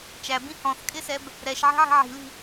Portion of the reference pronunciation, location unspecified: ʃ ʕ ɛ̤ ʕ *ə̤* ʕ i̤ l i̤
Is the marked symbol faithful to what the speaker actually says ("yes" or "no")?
no